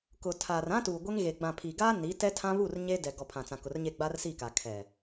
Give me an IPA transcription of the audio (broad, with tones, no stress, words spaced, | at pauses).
kʊ˨ tʰaː˨rã˦tuː˨ ɡʷe˦ŋɣe˨ ɡ͡bã˨pʰi˨ɡaː˦ ni˨˦ tɛ˦tʰã˦ βu˦˨r ɲe˦ dɛ˨ɡɔ˨ pʰã˨t͡sã˨kʊ˨rɲe˦˨ ɡ͡ba˦rsi˦˨ka˨ kʰɛ˨